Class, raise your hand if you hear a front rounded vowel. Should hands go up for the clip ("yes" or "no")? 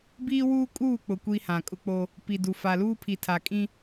no